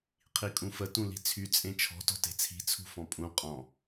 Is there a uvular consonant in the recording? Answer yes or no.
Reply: yes